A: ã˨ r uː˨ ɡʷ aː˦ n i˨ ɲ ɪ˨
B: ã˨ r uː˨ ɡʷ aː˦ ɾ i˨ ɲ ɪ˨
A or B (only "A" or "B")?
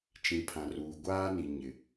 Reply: A